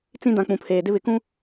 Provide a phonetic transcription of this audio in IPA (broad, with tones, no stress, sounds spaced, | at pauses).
t͡s ĩ˦ d ã˨ k͡p ũ˨ pʰ eː˨ d ɪ˦ β ɪ˨ k ũ˦